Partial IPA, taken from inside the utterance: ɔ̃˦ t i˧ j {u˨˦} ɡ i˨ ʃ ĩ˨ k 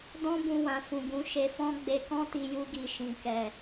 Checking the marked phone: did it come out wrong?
yes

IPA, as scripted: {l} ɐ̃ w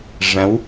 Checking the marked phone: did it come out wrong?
yes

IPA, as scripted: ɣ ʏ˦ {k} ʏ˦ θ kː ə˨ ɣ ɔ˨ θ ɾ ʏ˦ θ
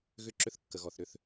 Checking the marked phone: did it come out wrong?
yes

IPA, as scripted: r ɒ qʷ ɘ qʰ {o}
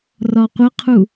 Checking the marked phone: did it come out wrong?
yes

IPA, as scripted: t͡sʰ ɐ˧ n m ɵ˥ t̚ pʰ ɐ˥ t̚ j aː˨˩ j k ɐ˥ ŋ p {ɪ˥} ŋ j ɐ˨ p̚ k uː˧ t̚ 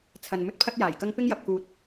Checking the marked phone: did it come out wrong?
no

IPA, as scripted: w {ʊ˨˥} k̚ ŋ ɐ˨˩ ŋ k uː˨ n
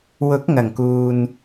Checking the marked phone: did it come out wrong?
no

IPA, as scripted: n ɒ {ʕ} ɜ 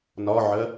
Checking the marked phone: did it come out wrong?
no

